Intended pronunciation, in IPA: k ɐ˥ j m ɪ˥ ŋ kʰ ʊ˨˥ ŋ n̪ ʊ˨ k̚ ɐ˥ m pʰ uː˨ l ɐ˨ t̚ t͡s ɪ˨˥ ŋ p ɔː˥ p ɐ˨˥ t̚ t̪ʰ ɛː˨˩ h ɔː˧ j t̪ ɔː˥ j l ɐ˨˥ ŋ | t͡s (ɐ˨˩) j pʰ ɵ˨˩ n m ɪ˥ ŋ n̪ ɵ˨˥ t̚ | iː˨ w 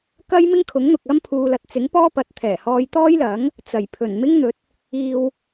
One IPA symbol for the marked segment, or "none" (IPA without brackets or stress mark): ɐ˨˩